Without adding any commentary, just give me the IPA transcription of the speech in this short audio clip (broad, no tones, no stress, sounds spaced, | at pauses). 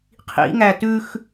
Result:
qʰ ḭ ŋ æ t ʉ x